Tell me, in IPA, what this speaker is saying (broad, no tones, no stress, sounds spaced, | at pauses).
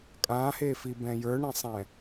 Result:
kʼ ã h e f i b ɛ̃ j ə˞ ɳ ɛ̃ sˤ ɛ̃